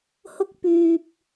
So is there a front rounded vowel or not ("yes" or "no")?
yes